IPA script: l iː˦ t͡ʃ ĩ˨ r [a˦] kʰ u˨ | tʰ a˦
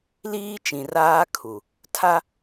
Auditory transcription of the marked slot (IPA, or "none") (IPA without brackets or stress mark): aː˦